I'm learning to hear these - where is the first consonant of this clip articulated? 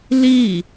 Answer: tongue tip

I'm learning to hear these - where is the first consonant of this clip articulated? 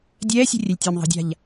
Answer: tongue tip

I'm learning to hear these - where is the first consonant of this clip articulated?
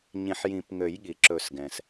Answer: palate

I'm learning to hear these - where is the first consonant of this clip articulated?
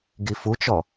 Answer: velum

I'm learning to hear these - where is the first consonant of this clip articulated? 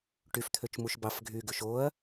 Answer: retroflex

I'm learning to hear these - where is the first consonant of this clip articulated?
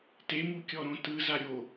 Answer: tongue tip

